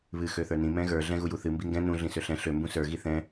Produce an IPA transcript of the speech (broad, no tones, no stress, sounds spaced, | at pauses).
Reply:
β ɨ x ø θ ə˞ n ĩ m ɛ̃ ɣ ə˞ ɮ ɛ̃ ɣ u j u θ ɨ m b i ŋ ɡ ɛ̃ n ũ ɮ ĩ s ø ɬ ɛ̃ ɬ ø m b ũ s ə˞ ɣ i θ ɛ̃